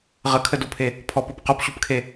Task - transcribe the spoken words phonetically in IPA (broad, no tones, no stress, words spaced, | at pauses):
ʁəkʰədopʰe | pʰɔpɔp qopɕupkʰe